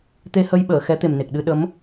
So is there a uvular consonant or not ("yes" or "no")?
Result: no